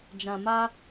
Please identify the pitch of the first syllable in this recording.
low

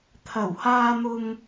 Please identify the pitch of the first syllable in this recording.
low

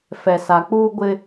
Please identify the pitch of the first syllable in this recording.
low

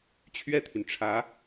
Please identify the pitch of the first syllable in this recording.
falling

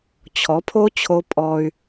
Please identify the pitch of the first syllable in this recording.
rising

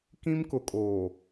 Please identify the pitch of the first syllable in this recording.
high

